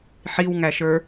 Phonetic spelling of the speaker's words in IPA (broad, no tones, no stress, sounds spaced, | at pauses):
ħ i w ŋ æ ʃ ə˞